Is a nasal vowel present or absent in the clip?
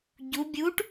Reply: absent